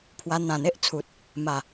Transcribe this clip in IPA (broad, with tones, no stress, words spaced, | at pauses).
pʰwa˧ n̪ã˨˩n̪e˦ʔt͡sʰu˨t̚ | ma˨˩